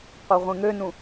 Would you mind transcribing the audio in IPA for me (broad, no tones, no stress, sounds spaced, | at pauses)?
qʷ œ ʁʷ ẽ ŋ ø n ũ